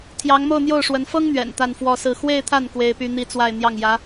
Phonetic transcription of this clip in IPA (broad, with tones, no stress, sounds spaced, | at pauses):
t̪ʰ j ɑ˧˥ ŋ m o˥˧ ʊ̯ n̪ j o˥˩ ʊ̯ ʂ w ə˧˥ n f ɤ˥ ŋ n̪ ɥ ɛ̰˨˩ n t̪ a˥˧ n f w ɔ˥˧ s ɹ̩˥˧ x w e˥˧ ɪ̯ t̪ʰ a˥˩ n k w e˥ ɪ̯ p y˥ n̪ i˥ t͡s w a˥˧ ɪ̯ n̪ j ɑ˥˩ ŋ j ä˧˥